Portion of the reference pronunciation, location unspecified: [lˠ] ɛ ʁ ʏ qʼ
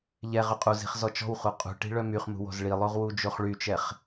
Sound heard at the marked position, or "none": ʎ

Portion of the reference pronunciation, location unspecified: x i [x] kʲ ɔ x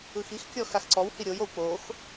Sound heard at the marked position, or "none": x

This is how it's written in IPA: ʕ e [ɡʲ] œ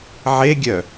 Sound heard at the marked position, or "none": ɡʲ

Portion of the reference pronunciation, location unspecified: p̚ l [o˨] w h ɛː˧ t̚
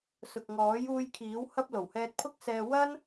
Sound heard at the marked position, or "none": o˨˩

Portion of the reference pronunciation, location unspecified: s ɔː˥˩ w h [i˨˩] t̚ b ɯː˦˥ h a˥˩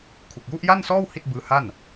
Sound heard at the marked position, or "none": i˥˩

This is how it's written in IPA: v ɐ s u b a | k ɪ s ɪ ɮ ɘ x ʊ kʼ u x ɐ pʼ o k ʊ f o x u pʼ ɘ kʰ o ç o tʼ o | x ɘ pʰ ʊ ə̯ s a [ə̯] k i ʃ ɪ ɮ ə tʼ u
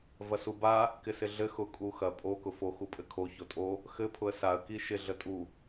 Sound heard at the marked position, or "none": ə̯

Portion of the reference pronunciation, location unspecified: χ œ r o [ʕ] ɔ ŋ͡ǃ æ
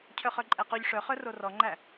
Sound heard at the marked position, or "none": r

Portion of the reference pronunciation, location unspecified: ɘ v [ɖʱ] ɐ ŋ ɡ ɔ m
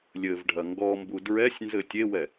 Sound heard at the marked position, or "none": ɖʱ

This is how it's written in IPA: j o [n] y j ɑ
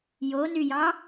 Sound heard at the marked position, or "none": n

